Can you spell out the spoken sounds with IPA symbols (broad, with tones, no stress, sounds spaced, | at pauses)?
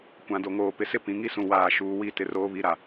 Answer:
kʷ ã˨ d o˨ ŋ oː˨ p ɪ˨ s ɪ˦˨ p ĩ˨ ŋ i˦ s ũ˨ w aː˨ ʃ uː˨ w i˦˨ t ɪ˦ r oː˦ β i˦ ɾ a˨